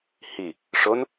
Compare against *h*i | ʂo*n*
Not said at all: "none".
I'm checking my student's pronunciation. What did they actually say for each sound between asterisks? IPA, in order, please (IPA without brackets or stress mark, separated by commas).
h, n